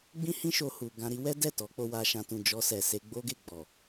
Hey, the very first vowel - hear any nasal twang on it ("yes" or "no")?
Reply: yes